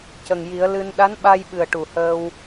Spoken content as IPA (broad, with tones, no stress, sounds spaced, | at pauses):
c ə˨˩ ŋ j i˨˩˦ ə̯ l ɨ˧ n ɗ a˧˥ n ɓ a˧ j ɓ ɨ˨˩ ə̯ ʈ u˨˩ h əː˧ w